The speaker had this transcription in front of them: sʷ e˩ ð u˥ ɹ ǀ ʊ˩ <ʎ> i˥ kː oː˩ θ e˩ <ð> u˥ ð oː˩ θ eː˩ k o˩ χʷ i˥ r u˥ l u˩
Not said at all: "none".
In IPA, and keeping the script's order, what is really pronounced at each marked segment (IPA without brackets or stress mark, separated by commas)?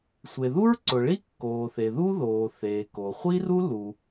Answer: ɭ, ð